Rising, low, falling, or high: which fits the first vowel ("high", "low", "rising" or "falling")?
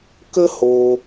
high